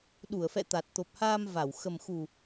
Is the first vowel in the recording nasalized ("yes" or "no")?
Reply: no